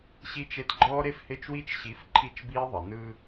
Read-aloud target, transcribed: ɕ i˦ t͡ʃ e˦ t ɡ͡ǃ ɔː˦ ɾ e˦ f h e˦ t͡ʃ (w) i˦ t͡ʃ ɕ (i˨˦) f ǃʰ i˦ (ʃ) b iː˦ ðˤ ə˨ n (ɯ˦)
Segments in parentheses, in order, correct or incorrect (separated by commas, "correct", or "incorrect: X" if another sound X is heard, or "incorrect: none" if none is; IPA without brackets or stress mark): correct, correct, incorrect: t͡ʃ, correct